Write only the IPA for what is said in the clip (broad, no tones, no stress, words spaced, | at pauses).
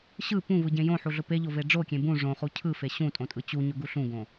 ɕɯ pũvɯɟẽ jõħuɮʊ peʎove ɖ͡ʐokʲẽ bũ ʐõχu cʰɯfe ɕũtʼõtʼɯ t͡ɕuɲʊɡu ɬũɡõ